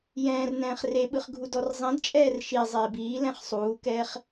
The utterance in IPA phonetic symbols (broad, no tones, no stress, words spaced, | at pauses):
jɛ̃ːr nɛ̃ːχreɓɯχ ɡʱudɔrzˤĩdt͡ʃʼɛːr ʃi zˤeːbiːlɛ̃χ sˤuːkɛːχ